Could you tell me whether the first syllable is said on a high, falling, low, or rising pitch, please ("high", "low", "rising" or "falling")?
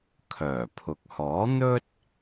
low